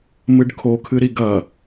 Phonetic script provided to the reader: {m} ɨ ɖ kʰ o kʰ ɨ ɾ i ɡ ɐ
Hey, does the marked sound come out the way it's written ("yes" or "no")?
yes